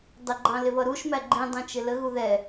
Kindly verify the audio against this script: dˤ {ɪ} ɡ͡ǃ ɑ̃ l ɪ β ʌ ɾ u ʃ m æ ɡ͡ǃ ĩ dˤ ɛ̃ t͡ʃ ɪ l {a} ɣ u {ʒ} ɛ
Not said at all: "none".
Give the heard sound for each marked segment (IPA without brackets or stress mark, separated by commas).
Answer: ɪ, ə, ð